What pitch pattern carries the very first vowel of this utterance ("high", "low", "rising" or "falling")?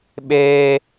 high